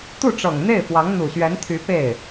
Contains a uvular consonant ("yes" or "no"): no